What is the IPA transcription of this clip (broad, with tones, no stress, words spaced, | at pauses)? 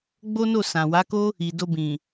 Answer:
ɡ͡bo˦no˦˨sã˨ wa˨˦ ko˦ | i˨do˧bĩ˨